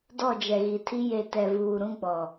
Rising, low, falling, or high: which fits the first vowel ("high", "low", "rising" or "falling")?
falling